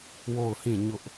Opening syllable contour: falling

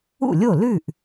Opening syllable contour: falling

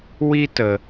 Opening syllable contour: high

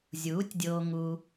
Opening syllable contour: rising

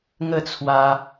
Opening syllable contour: falling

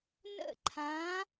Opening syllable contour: falling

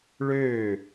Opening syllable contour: falling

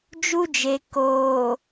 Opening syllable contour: high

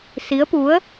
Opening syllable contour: rising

